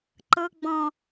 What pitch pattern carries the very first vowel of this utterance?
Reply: low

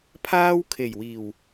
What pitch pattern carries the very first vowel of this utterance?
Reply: high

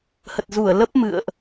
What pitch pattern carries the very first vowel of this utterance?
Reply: low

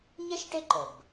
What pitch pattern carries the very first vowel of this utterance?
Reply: high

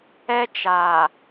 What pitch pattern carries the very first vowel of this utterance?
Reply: high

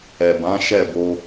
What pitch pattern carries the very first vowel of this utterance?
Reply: low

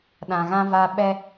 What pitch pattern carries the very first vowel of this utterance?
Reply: low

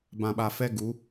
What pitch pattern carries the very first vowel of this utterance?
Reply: low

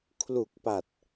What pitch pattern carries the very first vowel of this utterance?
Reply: low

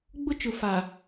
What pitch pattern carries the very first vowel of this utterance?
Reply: high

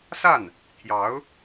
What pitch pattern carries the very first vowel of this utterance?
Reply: falling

